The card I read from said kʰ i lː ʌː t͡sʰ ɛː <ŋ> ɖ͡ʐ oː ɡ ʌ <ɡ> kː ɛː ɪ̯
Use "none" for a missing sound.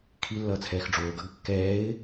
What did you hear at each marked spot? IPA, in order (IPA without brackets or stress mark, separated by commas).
x, ɡ